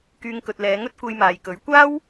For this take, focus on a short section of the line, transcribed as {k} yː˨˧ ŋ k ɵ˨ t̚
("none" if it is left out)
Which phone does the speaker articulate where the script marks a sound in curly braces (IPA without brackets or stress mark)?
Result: k